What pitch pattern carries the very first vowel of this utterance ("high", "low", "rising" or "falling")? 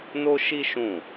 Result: high